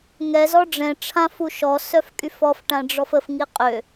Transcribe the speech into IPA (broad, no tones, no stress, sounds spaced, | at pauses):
ŋ ɛ z ɔ ɖ͡ʐ ɛ̃ ʈ͡ʂʰ ã f u ʃ ɔ s œ f kʼ y f ɔ f ʈ ã ɖ͡ʐ ɔ f ə f ŋ i qʼ ø